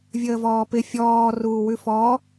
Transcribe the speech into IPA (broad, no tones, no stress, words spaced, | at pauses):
vʲəːvɔːpɪ fʲɔː ruːwʉfɔ